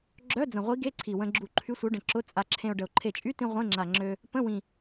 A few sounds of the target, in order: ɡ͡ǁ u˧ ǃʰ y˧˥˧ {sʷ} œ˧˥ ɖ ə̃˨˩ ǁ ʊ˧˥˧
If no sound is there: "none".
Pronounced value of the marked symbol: sʷ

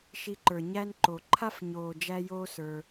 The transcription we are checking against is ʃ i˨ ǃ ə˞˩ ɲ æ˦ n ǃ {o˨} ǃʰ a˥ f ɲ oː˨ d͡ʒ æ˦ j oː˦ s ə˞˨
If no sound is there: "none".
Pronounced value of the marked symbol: o˩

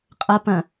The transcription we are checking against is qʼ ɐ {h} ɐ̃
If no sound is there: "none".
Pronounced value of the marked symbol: p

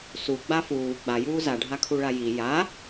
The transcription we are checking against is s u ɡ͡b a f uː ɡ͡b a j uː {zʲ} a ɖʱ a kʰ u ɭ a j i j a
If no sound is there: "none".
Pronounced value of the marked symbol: z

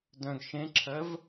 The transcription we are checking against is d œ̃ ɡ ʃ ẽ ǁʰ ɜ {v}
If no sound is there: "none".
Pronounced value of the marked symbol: v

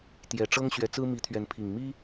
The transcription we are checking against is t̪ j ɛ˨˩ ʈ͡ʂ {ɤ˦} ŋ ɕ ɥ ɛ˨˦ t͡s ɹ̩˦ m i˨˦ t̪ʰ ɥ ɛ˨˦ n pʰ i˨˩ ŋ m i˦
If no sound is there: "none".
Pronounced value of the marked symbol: ɤ˦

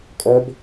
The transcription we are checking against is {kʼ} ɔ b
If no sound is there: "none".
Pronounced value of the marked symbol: kʼ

